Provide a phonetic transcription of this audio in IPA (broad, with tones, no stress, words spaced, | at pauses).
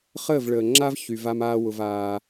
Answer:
χəː˦˨vɭəː˨ŋ͡ǁa˦v çy˧va˦maː˦ wʊ˧vaː˧